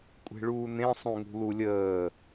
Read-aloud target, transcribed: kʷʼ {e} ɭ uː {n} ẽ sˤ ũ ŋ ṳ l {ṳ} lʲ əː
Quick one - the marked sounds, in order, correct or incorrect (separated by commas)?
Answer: incorrect, correct, incorrect